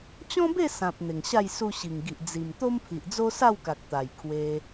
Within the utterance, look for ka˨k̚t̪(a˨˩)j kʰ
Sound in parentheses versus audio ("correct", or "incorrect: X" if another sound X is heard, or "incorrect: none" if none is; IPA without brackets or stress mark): correct